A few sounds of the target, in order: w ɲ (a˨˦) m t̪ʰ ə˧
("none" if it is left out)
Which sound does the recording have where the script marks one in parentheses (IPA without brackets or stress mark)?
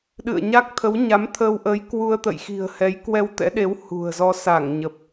a˨˦